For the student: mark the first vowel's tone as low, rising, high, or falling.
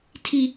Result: high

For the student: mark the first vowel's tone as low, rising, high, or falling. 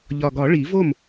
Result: low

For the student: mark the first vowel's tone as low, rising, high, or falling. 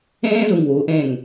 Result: high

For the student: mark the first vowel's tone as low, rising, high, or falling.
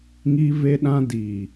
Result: high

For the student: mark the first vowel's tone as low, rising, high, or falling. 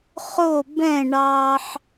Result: falling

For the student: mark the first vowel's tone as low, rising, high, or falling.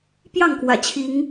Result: falling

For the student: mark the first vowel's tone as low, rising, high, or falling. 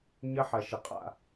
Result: high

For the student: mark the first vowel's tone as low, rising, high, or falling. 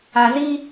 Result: low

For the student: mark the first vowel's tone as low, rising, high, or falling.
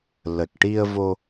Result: low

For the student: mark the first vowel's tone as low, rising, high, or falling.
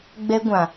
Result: high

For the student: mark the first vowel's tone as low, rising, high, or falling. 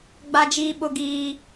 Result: high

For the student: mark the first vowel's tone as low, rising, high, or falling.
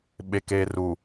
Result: low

